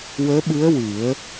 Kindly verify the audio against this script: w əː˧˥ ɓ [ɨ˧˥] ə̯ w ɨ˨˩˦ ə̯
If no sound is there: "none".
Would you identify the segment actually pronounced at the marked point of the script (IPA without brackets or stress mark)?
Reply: ɨ˧˥